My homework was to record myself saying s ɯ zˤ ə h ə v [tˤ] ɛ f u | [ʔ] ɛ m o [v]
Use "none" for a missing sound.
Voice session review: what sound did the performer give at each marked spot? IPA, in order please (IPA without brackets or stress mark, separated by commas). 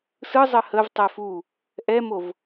tˤ, ʔ, v